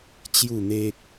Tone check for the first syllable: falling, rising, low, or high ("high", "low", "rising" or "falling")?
falling